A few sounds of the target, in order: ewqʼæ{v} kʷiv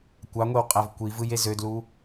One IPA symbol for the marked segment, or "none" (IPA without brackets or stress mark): v